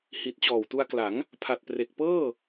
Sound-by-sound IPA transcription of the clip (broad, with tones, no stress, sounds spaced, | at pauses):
h i˨˩ t̚ t͡ɕ ɔː˨˩ w t u˧ a̯ k l a˩˦ ŋ | pʰ a˨˩ t̚ p r e˨˩ k̚ p ɤː˥˩